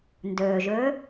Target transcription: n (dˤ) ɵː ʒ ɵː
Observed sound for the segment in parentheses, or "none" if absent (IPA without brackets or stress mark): d